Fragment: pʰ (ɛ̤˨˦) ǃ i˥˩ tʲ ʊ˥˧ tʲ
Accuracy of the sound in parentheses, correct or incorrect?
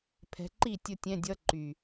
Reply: correct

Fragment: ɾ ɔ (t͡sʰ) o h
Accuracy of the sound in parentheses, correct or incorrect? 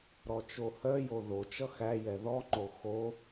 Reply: incorrect: t͡ʃ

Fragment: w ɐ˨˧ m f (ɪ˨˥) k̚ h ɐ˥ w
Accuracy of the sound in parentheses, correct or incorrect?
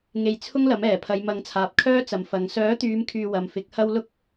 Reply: correct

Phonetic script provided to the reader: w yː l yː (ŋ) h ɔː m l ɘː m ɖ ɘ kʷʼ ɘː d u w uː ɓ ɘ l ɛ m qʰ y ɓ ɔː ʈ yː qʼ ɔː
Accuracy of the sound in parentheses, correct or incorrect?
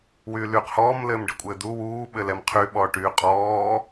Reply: incorrect: q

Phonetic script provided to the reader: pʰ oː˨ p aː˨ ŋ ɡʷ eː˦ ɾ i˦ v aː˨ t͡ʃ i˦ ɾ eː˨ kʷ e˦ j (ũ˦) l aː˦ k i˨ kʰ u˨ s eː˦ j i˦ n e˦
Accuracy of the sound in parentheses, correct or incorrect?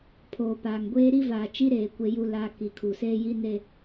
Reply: incorrect: u˦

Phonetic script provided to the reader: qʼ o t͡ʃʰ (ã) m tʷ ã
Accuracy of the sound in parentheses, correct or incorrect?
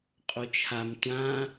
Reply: incorrect: a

